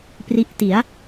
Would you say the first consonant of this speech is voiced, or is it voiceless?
voiceless